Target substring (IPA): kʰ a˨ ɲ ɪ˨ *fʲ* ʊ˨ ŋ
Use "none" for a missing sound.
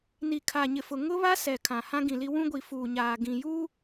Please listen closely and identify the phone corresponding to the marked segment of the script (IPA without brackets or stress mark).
f